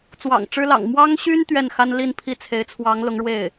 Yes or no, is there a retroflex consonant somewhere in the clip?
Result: yes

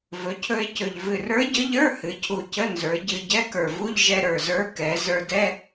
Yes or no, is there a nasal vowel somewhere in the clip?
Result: no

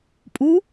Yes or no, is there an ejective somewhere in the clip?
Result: yes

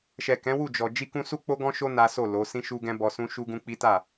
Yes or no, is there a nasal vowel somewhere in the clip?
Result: yes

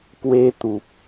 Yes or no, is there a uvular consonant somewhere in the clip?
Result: no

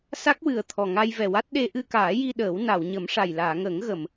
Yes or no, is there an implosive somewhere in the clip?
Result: yes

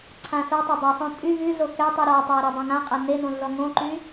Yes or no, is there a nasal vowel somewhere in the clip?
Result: yes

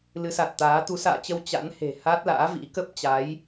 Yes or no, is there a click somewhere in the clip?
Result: no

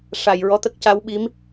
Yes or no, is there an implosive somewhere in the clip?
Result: yes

